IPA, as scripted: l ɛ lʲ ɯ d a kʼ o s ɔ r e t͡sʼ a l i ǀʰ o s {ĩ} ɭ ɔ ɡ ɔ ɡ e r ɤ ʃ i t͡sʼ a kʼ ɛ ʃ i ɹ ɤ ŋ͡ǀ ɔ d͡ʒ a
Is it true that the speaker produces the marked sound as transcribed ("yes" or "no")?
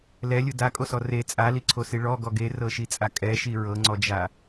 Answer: no